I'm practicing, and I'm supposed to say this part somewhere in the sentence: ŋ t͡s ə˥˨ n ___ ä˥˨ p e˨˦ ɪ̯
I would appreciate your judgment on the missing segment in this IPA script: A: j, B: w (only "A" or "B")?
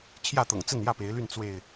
A